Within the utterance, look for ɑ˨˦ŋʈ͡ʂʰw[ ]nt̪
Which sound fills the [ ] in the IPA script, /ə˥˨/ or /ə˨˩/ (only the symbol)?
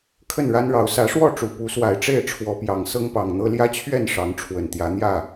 ə˨˩